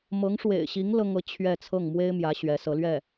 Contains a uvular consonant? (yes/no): no